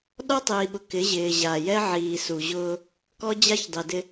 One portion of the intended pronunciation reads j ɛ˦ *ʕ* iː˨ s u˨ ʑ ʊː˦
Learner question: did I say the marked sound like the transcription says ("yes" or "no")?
yes